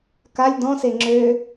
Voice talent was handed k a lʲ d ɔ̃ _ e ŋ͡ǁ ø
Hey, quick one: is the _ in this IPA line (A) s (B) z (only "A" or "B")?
A